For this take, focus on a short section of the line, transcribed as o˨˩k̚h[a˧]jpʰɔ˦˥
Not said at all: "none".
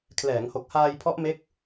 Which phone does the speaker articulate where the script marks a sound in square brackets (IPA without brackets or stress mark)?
aː˧